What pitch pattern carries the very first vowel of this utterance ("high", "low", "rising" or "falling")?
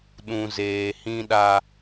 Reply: low